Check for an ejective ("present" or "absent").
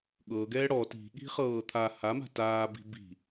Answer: absent